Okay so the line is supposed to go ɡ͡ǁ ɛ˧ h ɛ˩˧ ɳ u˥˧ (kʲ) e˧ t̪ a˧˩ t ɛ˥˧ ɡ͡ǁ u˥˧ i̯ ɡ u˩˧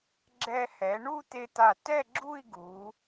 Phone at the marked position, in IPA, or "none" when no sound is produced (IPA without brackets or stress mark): t̪